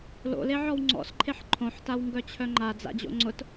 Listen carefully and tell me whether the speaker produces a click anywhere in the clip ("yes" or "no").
yes